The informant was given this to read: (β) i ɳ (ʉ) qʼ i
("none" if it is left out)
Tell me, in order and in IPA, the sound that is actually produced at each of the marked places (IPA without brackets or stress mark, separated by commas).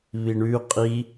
β, ʉ